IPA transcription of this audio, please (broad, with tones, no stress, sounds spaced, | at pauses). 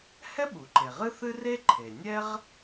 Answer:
h ɛ˥ ɓ u˩ ǃ e˩ ʁ ɨ˥ θ ɨ˥ r e˥ ǃʰ e˩ nʲ ɛ˥ ʁ